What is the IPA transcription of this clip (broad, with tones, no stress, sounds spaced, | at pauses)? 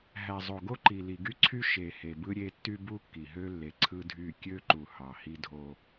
ɦ æ˨ zˤ o˨ ɡ o˦ ǃ i˨ l i˨ ɡ y˦ ǀʰ y˦ ʃ e˨ h e˨ b ɯ˦ ɾʲ e˦ tː y˦ b u˦ kː i˨ ɦ ø˦ lː e˨ ǀʰ ɯ˦ dʱ y˦˨ kʲ ø˦ ǃ u˨ h ɑ˨ h i˦ dʱ o˦